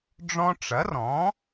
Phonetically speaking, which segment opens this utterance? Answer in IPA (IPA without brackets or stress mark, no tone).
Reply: ɖ͡ʐ